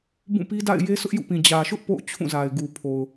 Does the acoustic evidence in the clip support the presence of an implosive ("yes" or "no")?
no